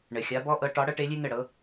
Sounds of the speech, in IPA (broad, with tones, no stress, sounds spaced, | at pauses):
ɳ ɘ˩ xʲ a˨˦ b ɔ˦ ʔ ɤ˨˦ ʈ ɒ˨˦ ɽ ɤ˦ ʈ e˨˦ lʲ e˦ ŋ ɘ˧˩ ɽ ɤ˨˦